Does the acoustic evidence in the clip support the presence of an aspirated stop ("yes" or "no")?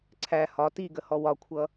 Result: yes